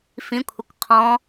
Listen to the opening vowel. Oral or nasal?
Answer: nasal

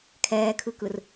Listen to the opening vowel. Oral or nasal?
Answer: oral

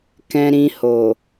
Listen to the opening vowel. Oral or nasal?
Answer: nasal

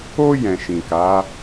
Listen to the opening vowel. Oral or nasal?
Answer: oral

